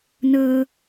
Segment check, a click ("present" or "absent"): absent